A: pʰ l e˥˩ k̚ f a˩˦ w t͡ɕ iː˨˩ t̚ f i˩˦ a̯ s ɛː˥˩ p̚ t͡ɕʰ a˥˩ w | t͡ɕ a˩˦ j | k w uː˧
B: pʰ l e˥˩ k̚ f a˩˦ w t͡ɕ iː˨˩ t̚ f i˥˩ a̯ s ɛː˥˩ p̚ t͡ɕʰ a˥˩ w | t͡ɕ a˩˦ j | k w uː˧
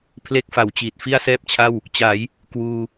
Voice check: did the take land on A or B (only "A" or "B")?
B